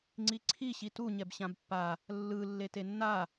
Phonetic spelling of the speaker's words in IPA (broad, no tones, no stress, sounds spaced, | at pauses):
ŋ͡ǀ i ǀʰ i ɕ i t u ɲ ɛ b ɕ ã b pː a | lː ɯ lː e t e nː a